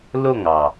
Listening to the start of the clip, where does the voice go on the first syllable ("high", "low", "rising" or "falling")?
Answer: falling